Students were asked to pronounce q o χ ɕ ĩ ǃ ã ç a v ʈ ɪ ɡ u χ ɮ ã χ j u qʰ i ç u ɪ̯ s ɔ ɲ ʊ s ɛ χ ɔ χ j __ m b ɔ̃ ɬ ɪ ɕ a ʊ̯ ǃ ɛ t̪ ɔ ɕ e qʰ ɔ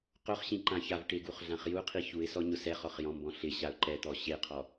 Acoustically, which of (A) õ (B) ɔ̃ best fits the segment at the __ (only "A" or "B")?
B